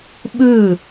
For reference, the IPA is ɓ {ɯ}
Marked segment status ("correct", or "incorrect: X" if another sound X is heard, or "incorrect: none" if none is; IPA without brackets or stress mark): correct